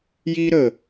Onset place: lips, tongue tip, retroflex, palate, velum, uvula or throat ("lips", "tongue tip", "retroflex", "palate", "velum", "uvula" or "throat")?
palate